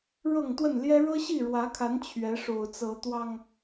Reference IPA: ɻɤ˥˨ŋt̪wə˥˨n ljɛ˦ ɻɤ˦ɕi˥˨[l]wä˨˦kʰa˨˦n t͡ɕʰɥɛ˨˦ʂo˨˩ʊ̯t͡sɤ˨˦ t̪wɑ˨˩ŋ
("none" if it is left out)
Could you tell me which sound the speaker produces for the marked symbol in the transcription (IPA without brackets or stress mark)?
ɻ